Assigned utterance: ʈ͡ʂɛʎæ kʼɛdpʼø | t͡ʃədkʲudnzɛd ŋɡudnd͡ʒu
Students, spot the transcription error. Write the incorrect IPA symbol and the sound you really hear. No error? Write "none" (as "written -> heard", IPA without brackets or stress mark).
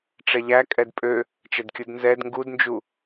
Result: none